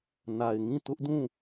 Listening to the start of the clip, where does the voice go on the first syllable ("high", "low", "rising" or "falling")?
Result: low